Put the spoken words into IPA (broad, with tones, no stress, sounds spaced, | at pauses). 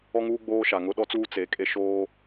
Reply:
ɔ˦ ŋ uː˦ ɡ͡b oː˦ ʃ a˨ ŋ ʊ˦ ɗ ɔ˦ t͡s uː˦ t͡s e˨˦ kʼ e˦ ʃ oː˦